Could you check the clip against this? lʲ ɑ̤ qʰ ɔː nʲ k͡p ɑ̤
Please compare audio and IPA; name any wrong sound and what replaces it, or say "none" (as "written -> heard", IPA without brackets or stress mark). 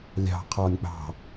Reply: none